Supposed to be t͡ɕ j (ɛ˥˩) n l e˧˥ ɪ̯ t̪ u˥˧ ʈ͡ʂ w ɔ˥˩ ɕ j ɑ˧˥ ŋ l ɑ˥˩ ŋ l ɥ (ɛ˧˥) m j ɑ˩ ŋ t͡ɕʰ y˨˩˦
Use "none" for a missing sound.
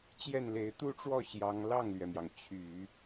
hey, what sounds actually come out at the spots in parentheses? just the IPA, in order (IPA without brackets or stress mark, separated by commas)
ɛ˥˩, ɛ˩